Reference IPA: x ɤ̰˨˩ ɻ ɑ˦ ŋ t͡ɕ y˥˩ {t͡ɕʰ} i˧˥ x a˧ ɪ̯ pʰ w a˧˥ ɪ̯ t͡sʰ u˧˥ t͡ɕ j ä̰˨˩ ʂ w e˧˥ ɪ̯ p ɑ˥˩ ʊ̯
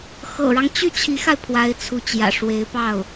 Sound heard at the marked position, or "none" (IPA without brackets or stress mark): t͡ɕʰ